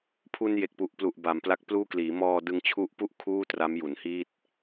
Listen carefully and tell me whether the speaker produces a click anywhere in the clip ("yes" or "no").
no